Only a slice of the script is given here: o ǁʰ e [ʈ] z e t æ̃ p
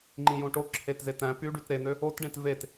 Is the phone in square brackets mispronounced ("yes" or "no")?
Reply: yes